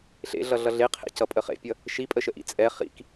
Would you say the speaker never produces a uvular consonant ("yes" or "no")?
no